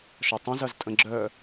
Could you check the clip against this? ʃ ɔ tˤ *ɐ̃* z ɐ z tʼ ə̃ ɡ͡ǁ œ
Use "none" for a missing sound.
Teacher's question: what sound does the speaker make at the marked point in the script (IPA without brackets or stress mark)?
ɐ̃